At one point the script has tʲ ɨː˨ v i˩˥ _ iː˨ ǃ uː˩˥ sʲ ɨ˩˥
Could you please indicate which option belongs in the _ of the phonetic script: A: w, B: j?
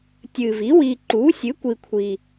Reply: A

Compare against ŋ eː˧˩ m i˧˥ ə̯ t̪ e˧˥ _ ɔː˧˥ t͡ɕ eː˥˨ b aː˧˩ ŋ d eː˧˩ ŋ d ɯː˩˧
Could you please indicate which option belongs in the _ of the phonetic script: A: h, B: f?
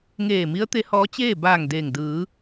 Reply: A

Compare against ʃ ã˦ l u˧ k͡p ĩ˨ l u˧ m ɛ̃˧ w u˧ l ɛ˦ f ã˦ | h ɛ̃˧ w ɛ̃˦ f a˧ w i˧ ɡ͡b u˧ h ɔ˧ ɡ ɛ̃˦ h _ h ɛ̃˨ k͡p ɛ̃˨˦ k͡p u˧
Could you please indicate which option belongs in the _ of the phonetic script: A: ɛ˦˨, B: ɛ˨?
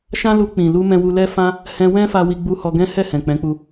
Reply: A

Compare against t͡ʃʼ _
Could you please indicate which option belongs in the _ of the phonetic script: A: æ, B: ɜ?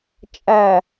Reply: A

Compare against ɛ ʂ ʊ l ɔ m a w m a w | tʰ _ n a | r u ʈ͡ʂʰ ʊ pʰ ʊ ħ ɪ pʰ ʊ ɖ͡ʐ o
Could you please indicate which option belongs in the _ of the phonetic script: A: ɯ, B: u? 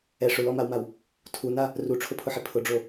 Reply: B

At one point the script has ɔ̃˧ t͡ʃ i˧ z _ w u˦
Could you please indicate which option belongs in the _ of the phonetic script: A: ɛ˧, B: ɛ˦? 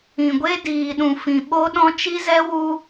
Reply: A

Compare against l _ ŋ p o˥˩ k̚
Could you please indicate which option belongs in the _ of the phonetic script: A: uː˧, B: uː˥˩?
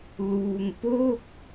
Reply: A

